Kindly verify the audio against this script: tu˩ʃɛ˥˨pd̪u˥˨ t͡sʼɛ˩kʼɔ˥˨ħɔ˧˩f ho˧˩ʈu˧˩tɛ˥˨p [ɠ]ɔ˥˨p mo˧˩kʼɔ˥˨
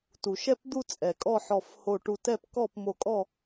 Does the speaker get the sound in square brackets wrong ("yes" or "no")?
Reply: yes